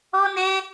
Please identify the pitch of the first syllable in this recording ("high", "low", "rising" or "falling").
high